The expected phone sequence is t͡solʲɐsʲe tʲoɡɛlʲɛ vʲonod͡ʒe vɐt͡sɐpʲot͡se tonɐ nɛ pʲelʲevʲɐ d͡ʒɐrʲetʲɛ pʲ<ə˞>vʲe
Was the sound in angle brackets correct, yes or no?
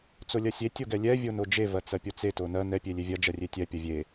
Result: no